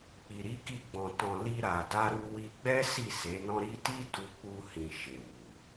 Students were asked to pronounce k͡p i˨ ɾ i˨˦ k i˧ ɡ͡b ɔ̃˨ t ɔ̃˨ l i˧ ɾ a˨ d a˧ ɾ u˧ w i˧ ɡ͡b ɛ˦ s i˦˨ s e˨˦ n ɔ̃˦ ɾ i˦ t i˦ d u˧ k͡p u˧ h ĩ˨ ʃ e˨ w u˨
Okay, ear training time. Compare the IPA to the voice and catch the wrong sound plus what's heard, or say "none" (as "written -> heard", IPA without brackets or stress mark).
none